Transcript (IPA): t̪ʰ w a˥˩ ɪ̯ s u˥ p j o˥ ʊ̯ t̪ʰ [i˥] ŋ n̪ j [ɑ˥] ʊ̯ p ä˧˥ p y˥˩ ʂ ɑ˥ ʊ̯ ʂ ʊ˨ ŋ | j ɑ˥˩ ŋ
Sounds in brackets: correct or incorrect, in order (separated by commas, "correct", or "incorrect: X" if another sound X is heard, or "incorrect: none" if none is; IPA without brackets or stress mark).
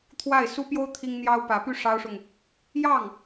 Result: correct, correct